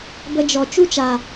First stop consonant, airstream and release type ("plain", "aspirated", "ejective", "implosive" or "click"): plain